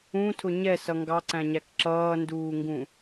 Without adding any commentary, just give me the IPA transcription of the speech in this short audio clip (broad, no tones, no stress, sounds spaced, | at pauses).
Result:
ũ tʰ ʊ ɲ ɛ s ʌ ŋ ɡ ɑ ǀ æ̃ ɲ æ k ǁ ʌː n d uː ŋ ɡ ũ